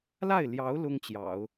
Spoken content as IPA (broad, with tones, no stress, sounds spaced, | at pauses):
l a˥˩ ɪ̯ l j ɑ˧˥ ʊ̯ l ʊ˥ ŋ t͡ɕ j ɑ̰˨˩˦ ʊ̯